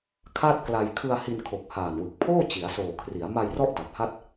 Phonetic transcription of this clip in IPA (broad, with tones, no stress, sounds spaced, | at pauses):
kʰ a˥˩ t̚ k l a˧ j kʰ ɯ˧ a̯ h i˧ n kʰ o˨˩ k̚ h aː˨˩ n w ɯ˨˩ k̚ pʰ oː˥˩ t͡ɕ i˩˦ a̯ s oː˨˩ kʰ r i˩˦ a̯ m a˧ j r ɔ˦˥ ʔ d a˨˩ p̚ h a˥˩ t̚